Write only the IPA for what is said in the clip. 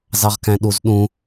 z ɑ ʁ k æ̃ ɗ u z ɗ ũ

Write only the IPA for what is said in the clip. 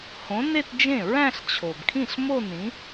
h õ˨˥ n e˥˧ t d͡ʒ ẽ˥˩ ɹ æ̃˥˧ ɬ t͡ɕʰ o˩ b kʰ ĩ˥˩ ɬ m o˥˧ n ĩ˨˥

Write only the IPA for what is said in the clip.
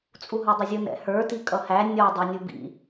t͡sʼ u ɦ ɔ dˤ ʊ zʲ ʊ n ɛ̰ h ə˞ t i kʼ ʌ h æ nʲ ɔ dˤ ɑ nʲ u b ḭ

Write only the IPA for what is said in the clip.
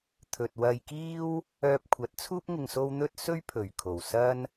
t̪ʰ ɵ˨ t̚ w ɐ˧ j k iː˥ w | œː˧ p̚ kʷʰ ɐ˨˥ t̚ t͡sʰ uː˥ p̚ ŋ ɪ˨ ŋ s o˧ w n̪ ɵ˧ t̚ s ɵ˥ ɥ pʰ ɵ˨˩ ɥ kʰ o˨˩ w s ɐ˥ n

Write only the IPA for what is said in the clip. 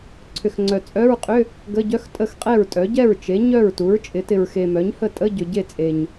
ǀʰ ʏ˨ x ŋ͡ǀ œ˨ t͡sʼ œ˧˥˧ ɹ qʼ ʏ˧˥˧ | ɡ ə˧˥˧ ɟ œ˧˥˧ x tʼ ə˥˩ x qʼ ɛ˥˩ ɹ tʼ œ˩˥ ɟ ɛ˥˩ ɹ t͡ʃ e˩˥ ɲ œ˥˩ ɹ t u˩˥ ɹ t͡ʃʼ ɪ˩˥ t ɪ˨ ɹ x e˨ m œ˩˥ ɲ h ə˥˩ tʼ ə˧˥˧ ɟ ʏ˨ ɟ e˥˩ t͡sʼ e˨ ɲ

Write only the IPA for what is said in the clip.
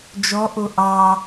d͡ʒ ɔ ʔ o ʔ ɑ

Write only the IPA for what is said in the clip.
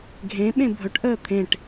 ɡʱ ẽ ɓ ẽ bʱ ɵ ʈ ʔ əː t̪ʰ ẽ ʈ

